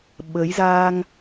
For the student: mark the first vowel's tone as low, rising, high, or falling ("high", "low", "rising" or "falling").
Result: rising